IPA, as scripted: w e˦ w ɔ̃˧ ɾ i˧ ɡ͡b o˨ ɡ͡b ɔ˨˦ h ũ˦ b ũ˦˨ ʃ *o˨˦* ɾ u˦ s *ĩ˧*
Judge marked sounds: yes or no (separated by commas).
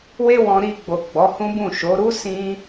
yes, yes